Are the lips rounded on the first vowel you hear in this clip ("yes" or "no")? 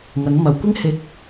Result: no